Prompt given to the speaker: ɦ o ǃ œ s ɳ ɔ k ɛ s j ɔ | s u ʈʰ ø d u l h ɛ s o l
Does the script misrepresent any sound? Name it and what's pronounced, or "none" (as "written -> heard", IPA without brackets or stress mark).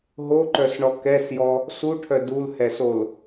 ø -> œ